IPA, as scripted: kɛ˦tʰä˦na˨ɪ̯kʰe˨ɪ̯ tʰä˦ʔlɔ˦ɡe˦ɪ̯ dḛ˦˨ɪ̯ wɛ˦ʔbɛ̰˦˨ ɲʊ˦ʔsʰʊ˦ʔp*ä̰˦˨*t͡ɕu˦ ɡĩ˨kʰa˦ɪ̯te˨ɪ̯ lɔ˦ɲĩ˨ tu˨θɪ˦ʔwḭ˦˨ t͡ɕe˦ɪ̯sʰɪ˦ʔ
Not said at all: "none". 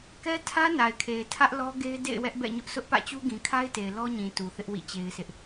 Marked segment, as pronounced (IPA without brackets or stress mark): ä̰˦˨